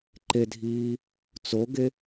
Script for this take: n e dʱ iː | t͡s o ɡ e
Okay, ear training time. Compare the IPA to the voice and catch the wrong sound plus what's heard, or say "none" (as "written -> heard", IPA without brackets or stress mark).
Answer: n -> ǃ